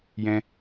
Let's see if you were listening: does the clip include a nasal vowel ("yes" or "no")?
yes